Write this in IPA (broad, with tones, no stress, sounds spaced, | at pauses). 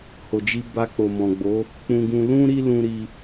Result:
h o˨ d͡ʒ i˧ b a˧ k͡p o˨ m ɔ̃˨ ɡ͡b o˨˦ | k͡p ũ˧ ɡ ũ˧ l ũ˦ ɾ i˦ l ũ˧ ɾ i˧